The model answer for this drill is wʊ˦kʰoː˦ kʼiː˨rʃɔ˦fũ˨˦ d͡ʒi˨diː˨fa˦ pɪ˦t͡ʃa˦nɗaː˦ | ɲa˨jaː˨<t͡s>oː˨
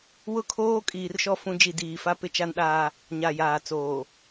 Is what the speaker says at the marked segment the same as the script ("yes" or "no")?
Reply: yes